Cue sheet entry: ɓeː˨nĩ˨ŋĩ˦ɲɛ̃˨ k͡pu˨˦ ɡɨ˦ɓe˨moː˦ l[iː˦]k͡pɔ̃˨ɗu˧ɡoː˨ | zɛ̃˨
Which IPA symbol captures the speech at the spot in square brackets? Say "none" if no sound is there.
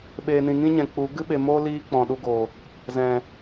iː˦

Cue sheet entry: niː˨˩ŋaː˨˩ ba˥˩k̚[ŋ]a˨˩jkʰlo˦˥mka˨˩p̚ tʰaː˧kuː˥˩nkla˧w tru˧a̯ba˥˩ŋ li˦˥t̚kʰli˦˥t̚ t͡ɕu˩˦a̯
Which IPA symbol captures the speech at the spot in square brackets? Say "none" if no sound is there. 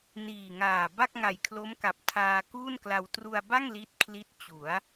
ŋ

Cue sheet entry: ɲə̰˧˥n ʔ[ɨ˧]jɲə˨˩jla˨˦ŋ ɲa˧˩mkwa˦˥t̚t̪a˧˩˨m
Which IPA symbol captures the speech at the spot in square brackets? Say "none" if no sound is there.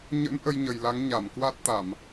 ə˧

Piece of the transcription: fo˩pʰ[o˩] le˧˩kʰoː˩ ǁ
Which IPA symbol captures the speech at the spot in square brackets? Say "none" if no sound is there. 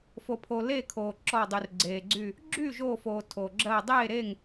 o˩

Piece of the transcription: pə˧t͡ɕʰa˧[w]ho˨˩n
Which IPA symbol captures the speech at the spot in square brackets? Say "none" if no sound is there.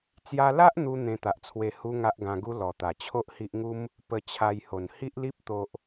j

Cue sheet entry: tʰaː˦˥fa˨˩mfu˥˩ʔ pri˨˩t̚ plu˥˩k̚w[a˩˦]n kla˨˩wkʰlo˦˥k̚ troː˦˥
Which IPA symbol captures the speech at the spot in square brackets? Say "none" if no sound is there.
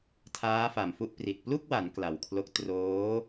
a˩˦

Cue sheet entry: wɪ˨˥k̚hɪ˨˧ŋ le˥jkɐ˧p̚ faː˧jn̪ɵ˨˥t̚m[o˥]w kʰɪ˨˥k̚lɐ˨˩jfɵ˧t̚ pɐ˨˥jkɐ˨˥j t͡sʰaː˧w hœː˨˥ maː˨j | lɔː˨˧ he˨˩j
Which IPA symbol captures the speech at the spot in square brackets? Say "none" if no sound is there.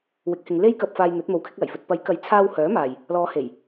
o˨˥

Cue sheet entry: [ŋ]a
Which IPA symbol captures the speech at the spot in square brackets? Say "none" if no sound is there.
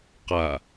q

